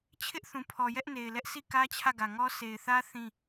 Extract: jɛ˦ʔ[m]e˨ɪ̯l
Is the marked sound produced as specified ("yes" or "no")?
no